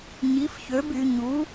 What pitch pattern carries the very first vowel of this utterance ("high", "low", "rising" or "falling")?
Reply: rising